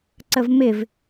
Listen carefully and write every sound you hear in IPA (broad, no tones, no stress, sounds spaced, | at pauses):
ǀ ə v m ɪ v